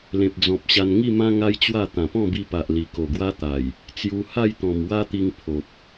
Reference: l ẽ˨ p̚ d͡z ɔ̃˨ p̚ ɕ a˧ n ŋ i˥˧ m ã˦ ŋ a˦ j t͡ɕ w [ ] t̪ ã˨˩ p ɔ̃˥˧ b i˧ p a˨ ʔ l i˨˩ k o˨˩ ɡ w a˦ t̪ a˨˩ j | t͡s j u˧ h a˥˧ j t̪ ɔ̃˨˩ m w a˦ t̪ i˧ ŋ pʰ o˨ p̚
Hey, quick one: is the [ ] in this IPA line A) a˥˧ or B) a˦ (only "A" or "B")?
A